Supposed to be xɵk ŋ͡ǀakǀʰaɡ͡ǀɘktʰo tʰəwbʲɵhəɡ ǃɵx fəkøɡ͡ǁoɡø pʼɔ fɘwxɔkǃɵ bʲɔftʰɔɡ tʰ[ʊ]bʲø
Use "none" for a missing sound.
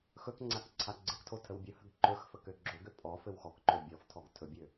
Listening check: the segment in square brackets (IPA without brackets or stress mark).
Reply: ɵ